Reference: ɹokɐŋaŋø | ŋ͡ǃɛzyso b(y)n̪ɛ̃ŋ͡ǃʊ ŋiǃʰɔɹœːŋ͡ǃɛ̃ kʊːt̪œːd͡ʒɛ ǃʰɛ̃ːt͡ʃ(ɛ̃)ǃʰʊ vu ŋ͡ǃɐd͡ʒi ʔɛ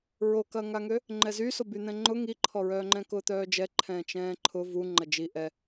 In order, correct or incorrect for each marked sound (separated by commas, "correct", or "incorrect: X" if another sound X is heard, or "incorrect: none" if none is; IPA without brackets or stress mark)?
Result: correct, incorrect: ɛ̃ː